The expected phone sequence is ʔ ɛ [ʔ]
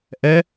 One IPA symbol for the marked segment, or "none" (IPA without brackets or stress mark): none